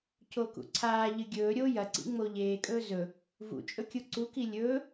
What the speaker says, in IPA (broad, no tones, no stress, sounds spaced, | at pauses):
c o k ṵ ǀʰ aː ʎ ɨ ɡʲ ɵː ɾʲ o j ɐ ǀ ḭ ŋ͡m o ʎ eː kʼ ɵː z ɵ | v ṵ t͡ʃʼ ɵ kʲ u ǀ u k i lʲ ɵː